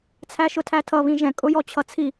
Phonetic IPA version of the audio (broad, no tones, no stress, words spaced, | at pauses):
t͡sʰæʃʊtʰætʰʌ βĩʒɛ̃ kʼʊjɔt͡ɕʰʌt͡sʰi